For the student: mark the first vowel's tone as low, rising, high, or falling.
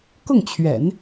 falling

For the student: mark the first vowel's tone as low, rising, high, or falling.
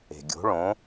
low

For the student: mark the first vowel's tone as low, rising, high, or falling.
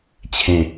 low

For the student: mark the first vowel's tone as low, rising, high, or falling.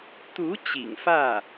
rising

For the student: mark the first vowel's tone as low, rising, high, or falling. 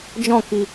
falling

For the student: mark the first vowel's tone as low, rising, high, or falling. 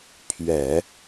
low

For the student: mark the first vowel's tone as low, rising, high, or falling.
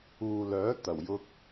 low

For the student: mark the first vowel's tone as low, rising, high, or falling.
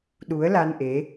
rising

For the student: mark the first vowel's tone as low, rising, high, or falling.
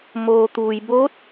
low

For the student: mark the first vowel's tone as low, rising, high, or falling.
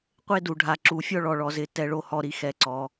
high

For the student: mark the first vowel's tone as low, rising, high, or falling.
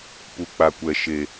low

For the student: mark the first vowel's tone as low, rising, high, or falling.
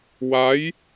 rising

